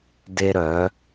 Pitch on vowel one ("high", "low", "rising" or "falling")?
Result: high